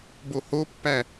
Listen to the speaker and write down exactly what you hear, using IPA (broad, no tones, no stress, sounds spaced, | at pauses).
b o h o pː æ